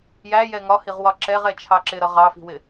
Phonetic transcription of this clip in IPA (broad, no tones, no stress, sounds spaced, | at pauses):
j æ j ɛ ŋ ɒ h i ʁ w ɒ ǁ ɛ ʁ ɛ t͡ʃʰ ɑ ǁ ɪ ɾ ʌ ʁ ɑ f i̤ w ɪ